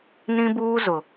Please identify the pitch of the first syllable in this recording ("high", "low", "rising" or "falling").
high